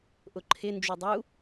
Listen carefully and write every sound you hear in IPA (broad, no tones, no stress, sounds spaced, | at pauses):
ʔ ʊ ǃʰ ɪ n d͡ʒ u dˤ u